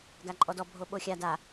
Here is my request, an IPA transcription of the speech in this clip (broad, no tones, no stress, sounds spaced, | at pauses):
ɡ a ǃʼ ɔ d ɔ bʱ o ɓ o xʲ a d a